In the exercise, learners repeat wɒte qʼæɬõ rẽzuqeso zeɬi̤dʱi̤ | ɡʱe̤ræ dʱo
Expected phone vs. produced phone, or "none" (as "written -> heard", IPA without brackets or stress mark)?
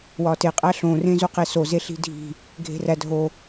none